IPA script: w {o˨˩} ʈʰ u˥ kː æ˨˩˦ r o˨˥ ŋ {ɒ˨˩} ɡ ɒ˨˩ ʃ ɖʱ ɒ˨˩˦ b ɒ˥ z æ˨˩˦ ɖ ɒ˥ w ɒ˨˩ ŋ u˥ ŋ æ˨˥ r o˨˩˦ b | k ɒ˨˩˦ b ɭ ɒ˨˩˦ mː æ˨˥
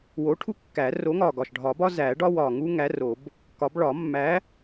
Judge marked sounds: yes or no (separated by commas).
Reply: no, yes